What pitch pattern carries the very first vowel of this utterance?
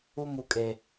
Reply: high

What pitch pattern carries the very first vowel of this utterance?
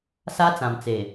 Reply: high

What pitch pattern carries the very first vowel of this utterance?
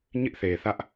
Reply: high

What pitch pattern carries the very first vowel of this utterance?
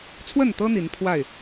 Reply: falling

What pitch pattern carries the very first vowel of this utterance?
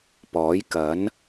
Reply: rising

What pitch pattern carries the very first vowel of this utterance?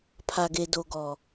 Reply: low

